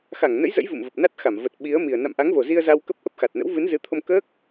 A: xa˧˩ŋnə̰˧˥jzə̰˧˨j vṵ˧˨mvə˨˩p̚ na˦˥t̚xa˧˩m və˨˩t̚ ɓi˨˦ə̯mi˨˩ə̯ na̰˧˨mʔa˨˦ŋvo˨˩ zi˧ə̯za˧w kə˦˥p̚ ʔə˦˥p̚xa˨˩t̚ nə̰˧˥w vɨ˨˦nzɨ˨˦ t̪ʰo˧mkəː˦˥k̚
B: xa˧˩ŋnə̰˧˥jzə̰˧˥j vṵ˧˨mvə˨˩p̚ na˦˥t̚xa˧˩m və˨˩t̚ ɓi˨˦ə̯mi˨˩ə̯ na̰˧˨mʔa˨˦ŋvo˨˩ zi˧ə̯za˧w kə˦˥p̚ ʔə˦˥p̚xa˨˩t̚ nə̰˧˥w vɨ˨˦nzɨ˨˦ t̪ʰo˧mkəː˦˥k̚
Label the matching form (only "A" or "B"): B